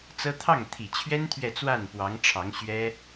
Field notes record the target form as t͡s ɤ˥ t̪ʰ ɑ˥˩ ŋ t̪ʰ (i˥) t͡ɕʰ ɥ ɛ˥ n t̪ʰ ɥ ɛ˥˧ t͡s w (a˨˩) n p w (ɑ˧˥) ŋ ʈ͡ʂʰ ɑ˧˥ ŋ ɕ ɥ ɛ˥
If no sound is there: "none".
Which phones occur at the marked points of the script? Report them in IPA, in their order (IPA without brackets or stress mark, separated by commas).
i˨˩, a˥˩, ɑ˧˥